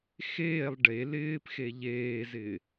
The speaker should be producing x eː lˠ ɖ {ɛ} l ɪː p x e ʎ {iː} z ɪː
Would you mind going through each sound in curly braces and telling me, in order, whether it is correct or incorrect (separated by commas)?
incorrect, incorrect